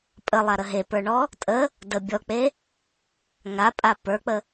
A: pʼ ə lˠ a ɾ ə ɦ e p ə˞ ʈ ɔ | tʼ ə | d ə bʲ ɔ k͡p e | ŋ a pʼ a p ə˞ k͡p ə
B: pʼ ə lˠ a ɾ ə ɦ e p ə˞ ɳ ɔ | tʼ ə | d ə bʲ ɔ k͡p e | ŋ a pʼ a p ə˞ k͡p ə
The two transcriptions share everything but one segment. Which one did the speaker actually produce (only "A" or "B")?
B